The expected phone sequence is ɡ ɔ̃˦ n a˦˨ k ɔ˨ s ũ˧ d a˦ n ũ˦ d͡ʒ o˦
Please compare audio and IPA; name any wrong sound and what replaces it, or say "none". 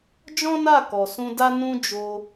ɡ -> d͡ʒ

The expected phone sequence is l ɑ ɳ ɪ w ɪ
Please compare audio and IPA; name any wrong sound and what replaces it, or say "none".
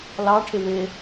ɳ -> ʈʰ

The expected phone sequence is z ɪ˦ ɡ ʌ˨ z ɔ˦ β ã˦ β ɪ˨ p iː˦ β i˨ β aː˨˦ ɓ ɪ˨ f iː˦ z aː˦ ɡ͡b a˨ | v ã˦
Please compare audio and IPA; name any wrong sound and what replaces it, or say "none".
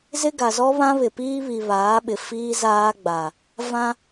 ʌ˨ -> a˨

